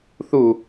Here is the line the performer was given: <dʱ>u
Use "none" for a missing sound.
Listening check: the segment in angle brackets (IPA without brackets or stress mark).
θ